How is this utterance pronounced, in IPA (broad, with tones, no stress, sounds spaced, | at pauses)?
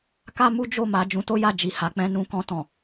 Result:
k a˦ m u˦ d͡ʒ o˦˨ m a˨˦ d͡ʒ ũ˧ t o˦ j a˦˨ d͡ʒ i˨ h a˨˦ k͡p ɛ̃˦ n ũ˧ k ɔ̃˧ t ɔ̃˨